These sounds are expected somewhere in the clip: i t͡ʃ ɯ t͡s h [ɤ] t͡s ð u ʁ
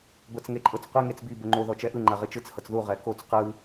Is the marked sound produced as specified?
yes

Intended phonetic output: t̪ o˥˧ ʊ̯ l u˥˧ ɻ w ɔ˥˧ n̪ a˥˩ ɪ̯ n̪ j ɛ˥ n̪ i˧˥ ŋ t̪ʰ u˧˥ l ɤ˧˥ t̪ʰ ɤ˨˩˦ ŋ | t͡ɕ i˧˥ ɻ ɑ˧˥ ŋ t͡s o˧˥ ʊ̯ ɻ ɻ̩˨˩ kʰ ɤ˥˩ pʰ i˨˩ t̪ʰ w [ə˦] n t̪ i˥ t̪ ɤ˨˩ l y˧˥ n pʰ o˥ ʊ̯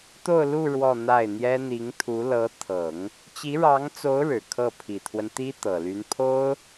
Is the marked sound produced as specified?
yes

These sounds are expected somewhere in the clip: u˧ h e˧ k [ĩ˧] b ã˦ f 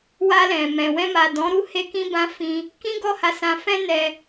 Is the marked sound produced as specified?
no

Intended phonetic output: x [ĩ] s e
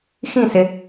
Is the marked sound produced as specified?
yes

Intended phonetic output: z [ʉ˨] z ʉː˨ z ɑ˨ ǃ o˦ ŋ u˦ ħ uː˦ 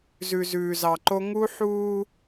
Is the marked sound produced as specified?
yes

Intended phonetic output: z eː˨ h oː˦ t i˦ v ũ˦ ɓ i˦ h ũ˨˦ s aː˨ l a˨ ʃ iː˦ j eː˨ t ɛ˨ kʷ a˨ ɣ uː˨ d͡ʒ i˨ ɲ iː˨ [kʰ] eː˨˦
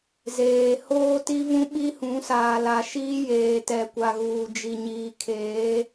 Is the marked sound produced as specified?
yes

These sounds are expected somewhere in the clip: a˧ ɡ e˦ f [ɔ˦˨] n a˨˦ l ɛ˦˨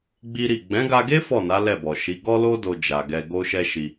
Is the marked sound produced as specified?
yes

